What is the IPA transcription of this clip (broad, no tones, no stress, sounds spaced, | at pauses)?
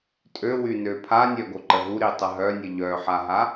tʼ ø w y n ø pʰ a nʲ œ ɡ o ǃ ə ɦ u ɾ i tˤ ə ɦ œ nʲ ə ʎ œ ħ a ɦ a